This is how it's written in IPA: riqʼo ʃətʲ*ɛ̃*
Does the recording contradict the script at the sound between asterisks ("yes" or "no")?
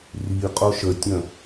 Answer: yes